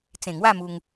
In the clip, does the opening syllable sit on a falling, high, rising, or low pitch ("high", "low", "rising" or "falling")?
low